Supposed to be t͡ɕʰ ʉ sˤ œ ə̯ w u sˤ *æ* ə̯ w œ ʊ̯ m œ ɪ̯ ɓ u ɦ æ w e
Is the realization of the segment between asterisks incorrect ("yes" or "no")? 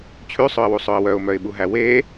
yes